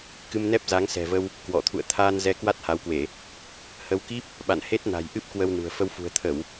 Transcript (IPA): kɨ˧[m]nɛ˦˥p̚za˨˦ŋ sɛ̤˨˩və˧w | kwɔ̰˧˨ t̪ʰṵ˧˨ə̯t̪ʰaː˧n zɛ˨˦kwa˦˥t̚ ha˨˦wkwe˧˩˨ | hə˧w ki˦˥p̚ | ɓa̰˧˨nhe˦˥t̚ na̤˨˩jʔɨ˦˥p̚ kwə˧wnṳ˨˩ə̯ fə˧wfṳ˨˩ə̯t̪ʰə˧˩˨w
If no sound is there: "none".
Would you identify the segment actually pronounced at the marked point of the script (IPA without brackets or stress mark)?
m